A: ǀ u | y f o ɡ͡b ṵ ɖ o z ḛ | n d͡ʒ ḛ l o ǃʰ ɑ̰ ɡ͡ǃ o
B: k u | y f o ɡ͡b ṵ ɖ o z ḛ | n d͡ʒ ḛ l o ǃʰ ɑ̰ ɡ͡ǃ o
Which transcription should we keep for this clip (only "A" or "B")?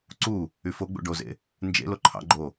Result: A